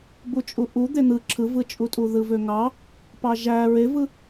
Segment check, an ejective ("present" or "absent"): present